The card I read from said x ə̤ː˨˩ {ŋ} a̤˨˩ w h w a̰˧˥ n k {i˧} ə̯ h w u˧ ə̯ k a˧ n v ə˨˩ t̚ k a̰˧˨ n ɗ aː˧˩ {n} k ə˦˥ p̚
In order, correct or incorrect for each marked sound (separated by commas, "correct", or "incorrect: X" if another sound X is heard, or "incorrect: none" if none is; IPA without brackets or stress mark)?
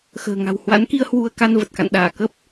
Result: correct, correct, incorrect: none